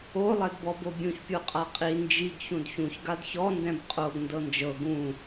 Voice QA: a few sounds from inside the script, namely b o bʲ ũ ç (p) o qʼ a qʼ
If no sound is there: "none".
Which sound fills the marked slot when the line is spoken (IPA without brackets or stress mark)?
pʲ